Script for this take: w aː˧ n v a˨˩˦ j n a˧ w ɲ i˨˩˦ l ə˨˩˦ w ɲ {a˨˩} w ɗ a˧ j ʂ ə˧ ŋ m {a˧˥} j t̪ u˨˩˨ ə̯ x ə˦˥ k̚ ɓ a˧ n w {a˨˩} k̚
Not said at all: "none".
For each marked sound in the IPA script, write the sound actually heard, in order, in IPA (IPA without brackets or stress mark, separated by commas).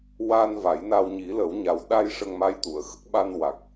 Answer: a˨˩˦, a˧˥, a˨˩